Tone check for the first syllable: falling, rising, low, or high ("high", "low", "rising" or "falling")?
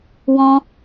high